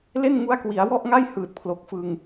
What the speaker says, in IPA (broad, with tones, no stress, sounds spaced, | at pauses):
l e˥˩ n ŋ u˦˥ a̯ k w i˩˦ a̯ w ɔ˥˩ ʔ ŋ a˥˩ j h ɯː˨˩ t̚ pʰ l o˨˩ k̚ f ɯ˧ ŋ